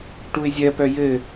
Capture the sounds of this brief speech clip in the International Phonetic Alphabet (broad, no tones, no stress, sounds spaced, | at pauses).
ʈ u ɪ̯ zʲ ɜ p œ j ɘ